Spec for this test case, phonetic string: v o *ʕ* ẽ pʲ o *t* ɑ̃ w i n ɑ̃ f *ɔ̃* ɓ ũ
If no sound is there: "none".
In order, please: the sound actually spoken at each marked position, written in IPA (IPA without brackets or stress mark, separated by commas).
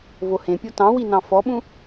h, t, ɔ